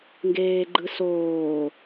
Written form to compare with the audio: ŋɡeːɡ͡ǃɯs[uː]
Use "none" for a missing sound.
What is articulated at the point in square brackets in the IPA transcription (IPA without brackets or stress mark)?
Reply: oː